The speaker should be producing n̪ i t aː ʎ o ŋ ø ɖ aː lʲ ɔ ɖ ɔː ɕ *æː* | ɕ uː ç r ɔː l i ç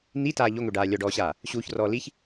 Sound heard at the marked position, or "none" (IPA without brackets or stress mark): aː